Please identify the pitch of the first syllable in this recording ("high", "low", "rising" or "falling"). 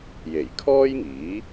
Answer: low